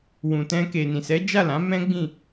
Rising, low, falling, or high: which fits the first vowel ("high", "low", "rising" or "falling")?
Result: low